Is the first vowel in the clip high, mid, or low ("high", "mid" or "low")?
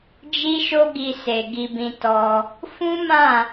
high